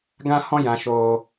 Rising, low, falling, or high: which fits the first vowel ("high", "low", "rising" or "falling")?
high